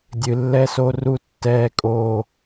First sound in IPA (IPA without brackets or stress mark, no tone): dʲ